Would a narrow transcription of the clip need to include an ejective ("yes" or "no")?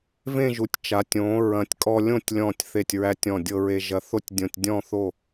yes